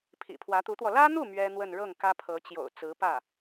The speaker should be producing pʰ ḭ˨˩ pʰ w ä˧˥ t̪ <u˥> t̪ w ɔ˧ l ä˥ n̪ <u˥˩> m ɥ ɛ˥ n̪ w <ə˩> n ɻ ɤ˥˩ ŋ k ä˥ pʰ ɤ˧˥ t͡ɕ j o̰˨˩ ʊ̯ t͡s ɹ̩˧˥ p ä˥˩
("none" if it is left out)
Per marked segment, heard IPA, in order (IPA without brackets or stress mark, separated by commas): u˧˥, u˥˩, ə˥˧